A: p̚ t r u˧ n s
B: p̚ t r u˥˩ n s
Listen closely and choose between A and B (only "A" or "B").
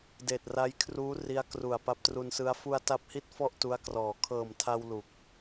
A